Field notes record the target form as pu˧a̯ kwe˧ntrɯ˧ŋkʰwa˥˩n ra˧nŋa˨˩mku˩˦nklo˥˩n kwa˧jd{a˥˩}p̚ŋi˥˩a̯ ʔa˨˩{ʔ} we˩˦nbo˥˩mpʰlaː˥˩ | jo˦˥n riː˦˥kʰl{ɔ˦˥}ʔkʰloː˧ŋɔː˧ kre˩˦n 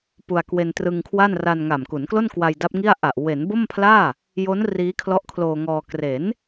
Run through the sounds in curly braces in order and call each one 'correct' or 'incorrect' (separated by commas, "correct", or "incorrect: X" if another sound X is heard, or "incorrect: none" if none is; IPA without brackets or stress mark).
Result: incorrect: a˦˥, correct, correct